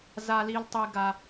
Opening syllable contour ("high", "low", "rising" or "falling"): high